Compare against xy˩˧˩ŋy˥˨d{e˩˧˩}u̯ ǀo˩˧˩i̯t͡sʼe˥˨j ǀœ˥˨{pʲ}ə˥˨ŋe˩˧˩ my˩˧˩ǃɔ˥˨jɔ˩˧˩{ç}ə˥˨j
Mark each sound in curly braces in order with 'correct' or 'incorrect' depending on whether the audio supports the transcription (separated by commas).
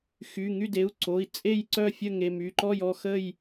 correct, incorrect, incorrect